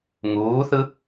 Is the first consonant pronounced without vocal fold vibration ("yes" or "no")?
no